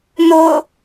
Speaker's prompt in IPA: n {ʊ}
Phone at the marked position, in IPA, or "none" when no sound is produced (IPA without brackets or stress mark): ʊ